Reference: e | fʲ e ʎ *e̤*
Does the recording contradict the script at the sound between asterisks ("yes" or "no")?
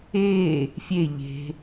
no